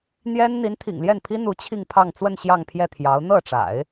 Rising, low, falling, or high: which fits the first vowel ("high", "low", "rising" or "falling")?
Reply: high